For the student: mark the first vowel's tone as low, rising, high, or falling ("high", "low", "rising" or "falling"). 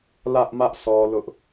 high